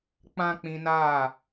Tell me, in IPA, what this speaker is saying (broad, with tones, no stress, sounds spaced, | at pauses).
k͡p ã˦ k͡p ĩ˧ n aː˦˨